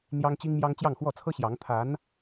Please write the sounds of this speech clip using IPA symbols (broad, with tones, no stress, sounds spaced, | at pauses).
n̪ j ɑ˥ ŋ t͡ɕ i˥ ŋ m j ɑ˥ ŋ t͡ɕ j ɑ˥˧ ŋ x w ɔ˥˩ t͡sʰ ɤ˥ ɕ j ɑ˧˥ ŋ t̪ʰ a˧˥ n